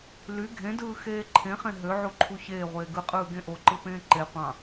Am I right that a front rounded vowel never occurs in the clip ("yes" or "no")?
no